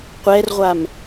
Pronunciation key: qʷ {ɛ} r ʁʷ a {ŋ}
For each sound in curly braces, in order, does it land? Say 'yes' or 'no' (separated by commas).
yes, no